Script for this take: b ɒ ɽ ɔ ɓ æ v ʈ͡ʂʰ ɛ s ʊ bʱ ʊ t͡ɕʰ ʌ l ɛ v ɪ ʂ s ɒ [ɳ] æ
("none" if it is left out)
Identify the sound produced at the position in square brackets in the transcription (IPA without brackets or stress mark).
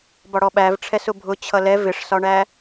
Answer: ɳ